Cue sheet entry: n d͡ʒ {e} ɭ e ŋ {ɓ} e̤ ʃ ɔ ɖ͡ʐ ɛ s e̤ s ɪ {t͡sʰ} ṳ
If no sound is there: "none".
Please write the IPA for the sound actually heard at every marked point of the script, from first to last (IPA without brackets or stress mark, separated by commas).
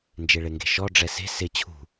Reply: e, ɡ, t͡ɕʰ